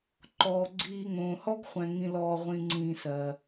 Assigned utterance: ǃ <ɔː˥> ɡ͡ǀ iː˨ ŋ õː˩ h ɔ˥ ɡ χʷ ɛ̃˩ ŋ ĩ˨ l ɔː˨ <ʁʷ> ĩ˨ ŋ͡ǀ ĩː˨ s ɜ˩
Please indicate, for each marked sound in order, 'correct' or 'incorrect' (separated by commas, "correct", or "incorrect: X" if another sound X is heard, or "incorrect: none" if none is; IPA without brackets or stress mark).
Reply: incorrect: ɔː˩, correct